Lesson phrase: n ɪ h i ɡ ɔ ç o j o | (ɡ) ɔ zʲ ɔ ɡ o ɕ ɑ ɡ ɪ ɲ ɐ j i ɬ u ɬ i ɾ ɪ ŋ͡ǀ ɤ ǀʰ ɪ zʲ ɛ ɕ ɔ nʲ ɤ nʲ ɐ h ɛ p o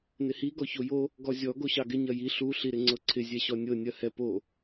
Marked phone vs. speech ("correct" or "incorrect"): correct